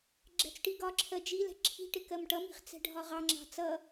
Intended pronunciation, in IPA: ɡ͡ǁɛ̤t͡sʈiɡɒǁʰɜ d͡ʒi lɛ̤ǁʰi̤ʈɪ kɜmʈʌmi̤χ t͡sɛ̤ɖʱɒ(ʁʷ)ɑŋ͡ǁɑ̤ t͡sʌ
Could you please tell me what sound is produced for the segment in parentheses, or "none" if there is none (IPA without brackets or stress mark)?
ʁ